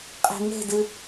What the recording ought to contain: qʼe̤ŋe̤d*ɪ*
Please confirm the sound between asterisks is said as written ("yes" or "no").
no